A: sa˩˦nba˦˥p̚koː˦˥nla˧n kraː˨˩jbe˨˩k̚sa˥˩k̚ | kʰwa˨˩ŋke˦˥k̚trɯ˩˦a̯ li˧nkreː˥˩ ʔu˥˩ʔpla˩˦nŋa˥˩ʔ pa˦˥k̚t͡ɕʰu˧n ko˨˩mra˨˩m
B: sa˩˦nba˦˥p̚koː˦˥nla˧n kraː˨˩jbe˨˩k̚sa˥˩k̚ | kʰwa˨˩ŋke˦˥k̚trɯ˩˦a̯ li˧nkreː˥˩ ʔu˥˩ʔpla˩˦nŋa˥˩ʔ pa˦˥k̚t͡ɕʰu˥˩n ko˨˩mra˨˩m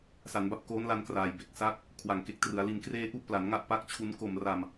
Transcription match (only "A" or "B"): A